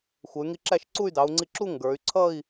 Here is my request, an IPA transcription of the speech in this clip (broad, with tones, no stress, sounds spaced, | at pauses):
xʷ ə˩˧ y̯ ŋ i˧ ǁ æ˥˧ ʃ ǀ u˥˧ y̯ d ɑ˩˧ u̯ ŋ͡ǀ i˧ ǁ u˥˧ ŋ ɡ ə˞˩˧ y̯ ǀʰ ʌ˥˧ i̯